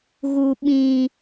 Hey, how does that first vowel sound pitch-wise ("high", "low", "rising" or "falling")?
high